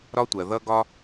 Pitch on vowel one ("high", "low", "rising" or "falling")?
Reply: high